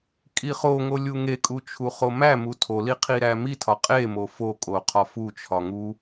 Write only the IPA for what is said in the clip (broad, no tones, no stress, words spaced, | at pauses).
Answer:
kʼiχoŋo lʲuŋekʼu t͡ʃʰuχomæmu tʰoli qʰiɾæmitʰɒ qʼemo fokʼo qʰɒfut͡ʃʰɒ ŋu